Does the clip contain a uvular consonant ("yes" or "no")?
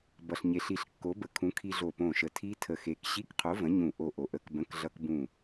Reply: yes